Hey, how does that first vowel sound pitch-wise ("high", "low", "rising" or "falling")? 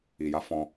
low